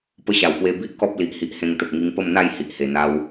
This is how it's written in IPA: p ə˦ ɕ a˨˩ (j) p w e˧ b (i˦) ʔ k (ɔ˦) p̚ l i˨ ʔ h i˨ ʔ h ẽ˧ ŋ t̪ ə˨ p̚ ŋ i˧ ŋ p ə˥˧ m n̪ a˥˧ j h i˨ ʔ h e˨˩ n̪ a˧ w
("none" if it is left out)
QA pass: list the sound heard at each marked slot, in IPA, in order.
w, i˦, ɔ˦

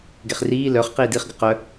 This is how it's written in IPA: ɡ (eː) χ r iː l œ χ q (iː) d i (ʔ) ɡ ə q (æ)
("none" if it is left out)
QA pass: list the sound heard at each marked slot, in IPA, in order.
e, iː, χ, œ

